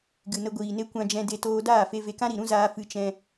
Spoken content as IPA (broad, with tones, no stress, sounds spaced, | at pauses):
ɡ ɨ˨ n ə˧ ɡʷ iː˨ n e˦ kʷ ã˧ d͡ʒ ɛ̃˧ d e˧ t oː˧ d aː˦˨ f e˧ v e˧ k ã˦ ɾ i˨ ɾ ũ˦ z aː˧ f ɨ˧ t͡ʃ ɛ̃˧